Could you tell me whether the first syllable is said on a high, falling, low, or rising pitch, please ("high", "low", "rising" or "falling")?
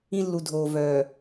high